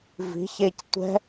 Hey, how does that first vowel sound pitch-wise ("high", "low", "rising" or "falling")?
rising